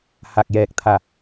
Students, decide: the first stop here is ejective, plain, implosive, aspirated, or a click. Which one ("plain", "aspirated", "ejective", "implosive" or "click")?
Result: plain